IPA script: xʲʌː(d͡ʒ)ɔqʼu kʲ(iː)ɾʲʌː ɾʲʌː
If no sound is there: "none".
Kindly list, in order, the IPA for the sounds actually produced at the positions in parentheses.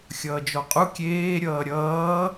d͡ʒ, eː

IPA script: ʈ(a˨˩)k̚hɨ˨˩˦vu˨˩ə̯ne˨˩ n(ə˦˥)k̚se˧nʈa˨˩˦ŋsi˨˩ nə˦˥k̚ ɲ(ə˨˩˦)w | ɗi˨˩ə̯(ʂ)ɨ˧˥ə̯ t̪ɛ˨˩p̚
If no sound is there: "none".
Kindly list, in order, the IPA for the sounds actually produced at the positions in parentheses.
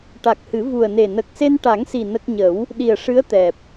a˨˩, ə˨˩, ə˨˩˦, ʂ

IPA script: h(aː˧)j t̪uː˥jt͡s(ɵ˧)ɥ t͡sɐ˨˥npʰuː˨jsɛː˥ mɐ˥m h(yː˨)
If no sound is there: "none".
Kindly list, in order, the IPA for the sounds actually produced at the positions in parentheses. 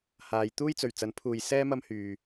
aː˨˧, ɵ˨˩, yː˨

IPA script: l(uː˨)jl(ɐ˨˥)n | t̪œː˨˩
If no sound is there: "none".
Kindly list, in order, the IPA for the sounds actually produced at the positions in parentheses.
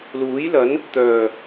uː˨˥, ɐ˨˥

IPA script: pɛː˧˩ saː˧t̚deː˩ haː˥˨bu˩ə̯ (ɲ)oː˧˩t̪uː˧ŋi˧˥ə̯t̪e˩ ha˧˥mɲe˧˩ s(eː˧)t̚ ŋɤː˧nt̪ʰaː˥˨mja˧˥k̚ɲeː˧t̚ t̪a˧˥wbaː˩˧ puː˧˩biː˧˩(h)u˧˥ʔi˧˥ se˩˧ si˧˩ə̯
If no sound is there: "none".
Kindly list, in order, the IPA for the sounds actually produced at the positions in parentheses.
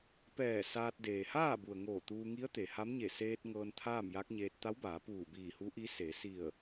ŋ, eː˧, h

